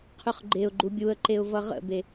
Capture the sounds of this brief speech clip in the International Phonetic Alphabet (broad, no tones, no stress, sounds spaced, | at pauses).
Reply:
qʰ ʉ χ ɡ͡ǃ e ʊ̯ ɡ͡ǃ u bʲ u ə̯ ǃ e ʊ̯ v ʌ ʁ ə̰ b e